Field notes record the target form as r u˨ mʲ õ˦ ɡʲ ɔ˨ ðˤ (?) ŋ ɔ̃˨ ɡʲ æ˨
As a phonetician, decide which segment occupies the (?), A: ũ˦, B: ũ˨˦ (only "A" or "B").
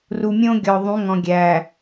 B